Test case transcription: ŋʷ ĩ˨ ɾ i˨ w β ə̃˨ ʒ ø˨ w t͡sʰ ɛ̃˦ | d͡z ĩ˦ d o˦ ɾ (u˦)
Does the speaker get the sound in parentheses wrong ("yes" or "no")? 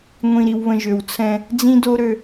yes